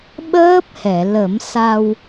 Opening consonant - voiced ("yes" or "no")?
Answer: yes